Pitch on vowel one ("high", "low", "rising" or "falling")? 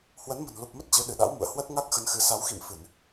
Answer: rising